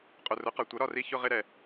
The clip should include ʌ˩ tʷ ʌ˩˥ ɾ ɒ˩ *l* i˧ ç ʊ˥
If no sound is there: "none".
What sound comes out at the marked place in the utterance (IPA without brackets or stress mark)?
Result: r